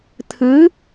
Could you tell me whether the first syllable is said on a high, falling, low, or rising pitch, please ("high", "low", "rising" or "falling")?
rising